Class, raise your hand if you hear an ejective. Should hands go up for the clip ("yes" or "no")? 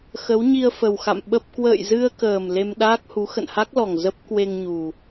no